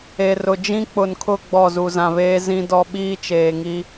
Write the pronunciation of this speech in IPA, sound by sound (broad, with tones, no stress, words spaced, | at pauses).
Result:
e˨rʊ˨ d͡ʒĩ˦k͡pʊ˨nkʰʊ˦˨ ɡ͡bɔ˦˨zu˨zã˨βeː˦ zĩ˦ dɔ˦ɓiː˦t͡ʃeː˨ŋi˦